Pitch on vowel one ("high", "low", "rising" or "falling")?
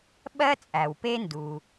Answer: high